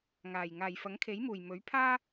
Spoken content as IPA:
ŋ aː˨˩ j ŋ aː˨˩ j f ɐ˨˥ ŋ kʰ e˨˥ j m uː˨˩ j m ɵ˨˥ ɥ pʰ aː˥

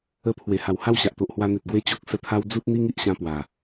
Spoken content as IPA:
ə˧ pʰ w e˨˩ h a˨˩ w h a˥˧ w ɕ a˨ ʔ t̪ o˨ ʔ h w a˧ n̪ e˨ t̚ ɡ w e˦ t͡ɕ o˦ k̚ s ə˧ t̪ʰ a˦ w d͡z u˦ t̚ n̪ i˦ ŋ i˦ ʔ ɕ ã˧ p w a˨˩

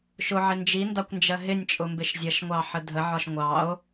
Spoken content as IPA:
ʃ ʊ ʕ ɪ n d͡ʒ i n d ɑ kʷ n d͡ʒ ɜ ɦ ɪ nʲ t͡ʃʼ ʊ m b ɪ ʃ zʲ ʌ ʃ ŋʷ ɑ ħ ə dʱ ə ʕ ɒ ʃ ŋʷ ɑ o̯

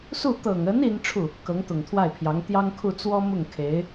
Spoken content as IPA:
s u˥˩ t̪ ɤ˨˩ ŋ ə˧˥ n i˥ n ʈ͡ʂʰ u˥˩ | k ɤ˧˥ ŋ t̪ ʊ˨˩ ŋ t̪ʰ w a˥˩ ɪ̯ pʰ j ɑ˧˥ ŋ t̪ j ɑ˥ ŋ kʰ u˥˩ t͡s w ɔ˥ m ʊ˥˩ ŋ kʰ e˧˥ ɪ̯

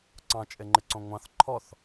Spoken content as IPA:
ǀ ɑ̃ t͡ʃʼ e ŋ͡ǃ ɪ ǀ õ ŋʷ ɑ̃ θ ǃʰ ɔ θ

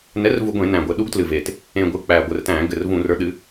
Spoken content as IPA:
n ɛ˨˥ r v u˧˩˧ ɡʷ ẽ˧˩˧ n æ̃ː˨˩ ɡʷ ɘ˧˩˧ ɗ u˨˥ ɡ t l ɨ˨˩ v e˨˩ t | ẽ˨˩ ɡʷ ɨ˨˩ k͡p æː˨˩ ɡʷ ɘ˧˩˧ r t æ̃ː˧˩˧ ɡ ɘ˨˩ r v ũː˧˩˧ r ə˞˨˥ ɗ ɨ˨˥

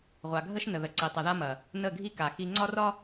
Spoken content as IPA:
ʁʷ a˨ ɡʱ ə˦ ʃ n ə˨ ð ə˨ ǀ i˨ tˤ ɐ˨ ð a˦ m ɐ˨ | n ə˦˨ ɡʱ i˦ k a˨ x i˦ ŋ͡ǀ ɒ˦ r ɒ˦

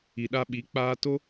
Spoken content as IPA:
i˨ ɗ a˦ ɓ i˨˦ k͡p aː˧ t o˦

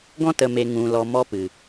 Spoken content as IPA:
ɡ ɔ̃˦ t ə˨ m e˨ ŋ ũ˨ l ɔ˨ m ɔ˦ p ɨ˨

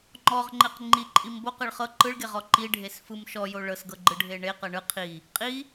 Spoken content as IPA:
ŋ͡ǃ ɔ ʁ ŋ͡ǃ e q ŋ͡ǃ i ǃʼ i m b o q ɤ ɭ χ ɤ ǃ ɯ ɭ ɡ e ʁ ɔ ǃ i ɖʱ e s f ɯ m ʃ ɔ j o ɭ ɤ s ɡ ɤ ɡ͡ǃ ɯ ɖʱ e ɳ e q ɤ ɳ ɯ qʰ i | qʼ i

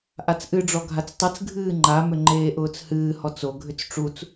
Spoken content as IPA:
ʔ a t͡s ʔ ɨ ɖ͡ʐ ɔ ɡʱ a t͡s tˤ ɨ t͡s ɡʱ ɨː ŋ͡ǃ a m ʏ ŋ͡ǃ eː ʔ ʊː t͡s h ɨː h ɔ t͡s o ɡʱ ʏ t͡s ʈ͡ʂ u t͡s

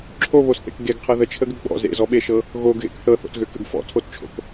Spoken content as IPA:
ǁʰ o β o s θ ḛ k ɡ e ɡ qʰ ɤ ð ə t͡ʃʰ ə ɡ ʏ ɡ͡b ɔ̰ z ḛ z ɔ ɓ e ʃ ɤ | ɣ o ɡ ɣ ḛ k θ ɤ θ o̰ t ɣ ʏ k ə̰ ɡ f ɔ̰ tʰ o t t͡ʃʰ o̰ k

